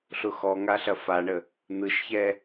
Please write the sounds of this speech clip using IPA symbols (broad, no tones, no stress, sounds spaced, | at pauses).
ɬ ʊ x ɔ ŋ a ɬ ɐ f a ɳ ə | n̪ ɯ ʃ ç ɛ